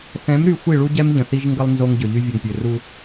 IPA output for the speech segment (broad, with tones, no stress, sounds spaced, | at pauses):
θ ɛ̃˨˦ m ɾ y˨ xʷ i˦˨ ɭ u˦ ɟ ɛ˦ m ʎ ə̃˨ θ i˦ ʒ ŋ ɡ ə˦ lˠ n z o˦ ŋ ɟ ø˨ ʎ y˦ vʲ ə˨ ŋ pʲ ø˨ r u˦